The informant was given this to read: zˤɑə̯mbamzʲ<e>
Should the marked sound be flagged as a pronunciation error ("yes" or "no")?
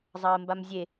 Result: no